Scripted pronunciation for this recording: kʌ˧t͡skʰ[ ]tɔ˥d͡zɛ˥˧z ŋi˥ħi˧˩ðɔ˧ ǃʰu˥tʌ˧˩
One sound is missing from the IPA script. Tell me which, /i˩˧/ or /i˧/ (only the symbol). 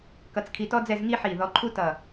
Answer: i˧